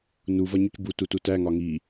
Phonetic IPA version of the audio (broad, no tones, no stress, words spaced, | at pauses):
nuv ʌɲucbu tututæ ŋɒŋi